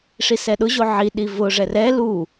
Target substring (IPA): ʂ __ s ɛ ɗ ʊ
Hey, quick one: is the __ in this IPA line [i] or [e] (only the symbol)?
i